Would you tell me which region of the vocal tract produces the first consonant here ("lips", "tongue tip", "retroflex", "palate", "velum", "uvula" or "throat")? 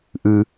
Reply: throat